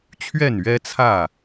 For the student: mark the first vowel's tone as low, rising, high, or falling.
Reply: falling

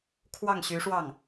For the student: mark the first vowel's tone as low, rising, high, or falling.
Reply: falling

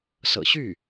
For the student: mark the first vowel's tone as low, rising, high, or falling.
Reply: low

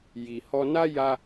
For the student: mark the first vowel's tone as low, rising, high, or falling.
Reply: low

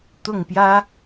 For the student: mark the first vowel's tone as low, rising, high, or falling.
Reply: falling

